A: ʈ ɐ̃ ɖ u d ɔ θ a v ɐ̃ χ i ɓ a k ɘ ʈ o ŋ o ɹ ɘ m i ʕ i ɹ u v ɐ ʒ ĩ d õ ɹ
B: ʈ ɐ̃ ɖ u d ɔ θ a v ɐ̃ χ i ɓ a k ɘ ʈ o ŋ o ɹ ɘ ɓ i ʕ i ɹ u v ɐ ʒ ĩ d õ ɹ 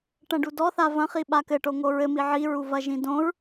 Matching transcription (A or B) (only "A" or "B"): A